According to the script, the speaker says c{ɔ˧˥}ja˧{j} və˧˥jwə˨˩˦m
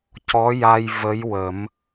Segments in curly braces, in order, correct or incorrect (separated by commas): correct, correct